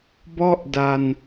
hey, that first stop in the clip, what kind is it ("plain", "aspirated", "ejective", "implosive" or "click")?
plain